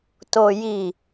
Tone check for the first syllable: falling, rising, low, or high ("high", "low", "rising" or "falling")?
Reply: low